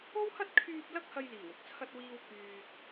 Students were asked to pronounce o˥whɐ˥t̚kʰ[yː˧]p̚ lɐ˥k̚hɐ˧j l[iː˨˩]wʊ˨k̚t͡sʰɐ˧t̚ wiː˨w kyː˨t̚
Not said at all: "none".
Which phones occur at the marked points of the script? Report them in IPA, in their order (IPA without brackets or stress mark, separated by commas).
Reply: yː˧, iː˨˩